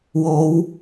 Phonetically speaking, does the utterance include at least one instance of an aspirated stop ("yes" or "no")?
no